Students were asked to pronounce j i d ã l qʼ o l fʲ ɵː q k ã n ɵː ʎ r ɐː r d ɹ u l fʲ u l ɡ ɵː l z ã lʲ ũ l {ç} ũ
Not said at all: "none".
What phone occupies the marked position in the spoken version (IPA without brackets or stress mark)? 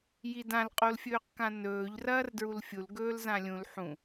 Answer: ħ